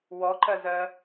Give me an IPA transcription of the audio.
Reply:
w ɔ ǃ ɜ z ɜ

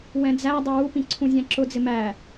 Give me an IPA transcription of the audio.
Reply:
w ɛ̃ d͡z æ dˤ ɪ w u p ĩ ǀʰ ũ zʲ æ̃ ǁ ʊ d͡z ɪ m æ

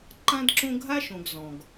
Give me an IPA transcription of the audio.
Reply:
ǃ ã˦ d ǁ õ˦ ɡʱ a˥ ʃ õ˨ ɡ z ɔ̃˩ ɡ

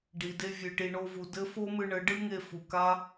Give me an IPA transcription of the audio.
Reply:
ɖ i˨ d e˧ vʲ ɨ˨ ʈ i˨ ɳ o˧ v u˨ d ɘ˦ f o˦ m ɨ˧ ɳ ɘ˨˦ ɖ ɨ˦ ŋ e˧ f u˨ k a˦

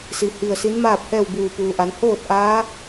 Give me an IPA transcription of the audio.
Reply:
s i˩ h i˧˩ ə̯ s i˧˥ n m aː˥˨ p̚ h ɛː˥˨ w b uː˧˩ p uː˩ ʔ a˩˧ n h oː˥˨ t̚ ʔ aː˧˥

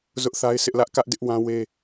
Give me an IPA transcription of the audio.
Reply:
z ʊ˦ ʔ θ a˦ ɪ̯ s ɪ˦ ʔ l ä˦ ʔ k ä˦ ʔ d ɪ˦ ʔ w ã˦ w e˦

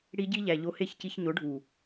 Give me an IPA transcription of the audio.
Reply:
ɽ i˧ ɟ i˦ ʎ æ˨ ʎ o˧ h e˦˨ ç c i˧ ç ɲ o˨˦ ɖʱ u˨

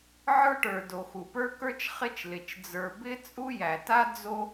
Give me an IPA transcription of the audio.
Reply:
ʕ ə˞˥ ʈ ə˞˩ d o˩ x u˩ p ə˞˥ k ə˞˥ t͡ʃ χ ɪ˥ t͡ʃ l ɪ˩ t͡ʃ d͡z ə˞˩ b ɪ˥ t͡sʼ u˥ j æ˩ t a˥ d͡z o˥

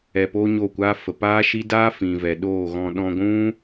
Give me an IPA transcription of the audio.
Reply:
ɛ˧ p oː˦ ɲ o˦˨ kʷ aː˦ f ə˨ p aː˦ ʃ i˦ d aː˦ f ĩ˨ v ɛ˨ ɗ oː˦˨ ɣ ɔ̃˧ ɗ ɔ̃˧ ɡʷ ũ˦

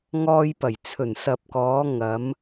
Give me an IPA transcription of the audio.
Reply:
ŋ ɔː˧ j p ɐ˨˩ j t͡sʰ ɵ˨˩ n s ɐ˨ p̚ k ɔː˨˧ ŋ ɐ˨˧ m

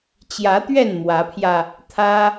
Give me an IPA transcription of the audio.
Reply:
t͡ɕ j ä˨˦ t̪ ɥ ɛ˥˨ n m w ä˨˦ pʰ j ä˧ | t̪ʰ ä˦

